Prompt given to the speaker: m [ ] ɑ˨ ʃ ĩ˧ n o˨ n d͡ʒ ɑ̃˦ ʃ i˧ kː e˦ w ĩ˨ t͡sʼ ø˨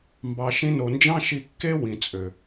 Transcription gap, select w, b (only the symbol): b